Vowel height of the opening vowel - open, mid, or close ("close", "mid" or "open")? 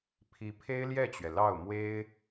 close